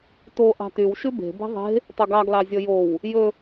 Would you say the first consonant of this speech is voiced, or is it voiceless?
voiceless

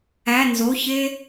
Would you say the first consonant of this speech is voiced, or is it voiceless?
voiced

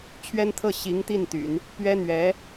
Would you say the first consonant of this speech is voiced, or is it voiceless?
voiceless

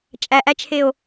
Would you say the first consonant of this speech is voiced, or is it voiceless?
voiceless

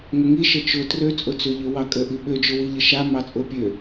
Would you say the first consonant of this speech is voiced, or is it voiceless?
voiced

